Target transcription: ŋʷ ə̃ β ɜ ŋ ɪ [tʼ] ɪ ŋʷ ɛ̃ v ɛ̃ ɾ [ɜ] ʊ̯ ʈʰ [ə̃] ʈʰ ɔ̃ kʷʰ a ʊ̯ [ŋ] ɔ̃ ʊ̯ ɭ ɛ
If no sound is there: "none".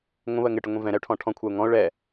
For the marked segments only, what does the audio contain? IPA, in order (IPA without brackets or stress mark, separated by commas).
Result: ʈ, ɛ, ɔ̃, ŋ